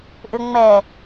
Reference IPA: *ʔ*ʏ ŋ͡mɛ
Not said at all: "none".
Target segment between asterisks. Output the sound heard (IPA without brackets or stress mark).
ʔ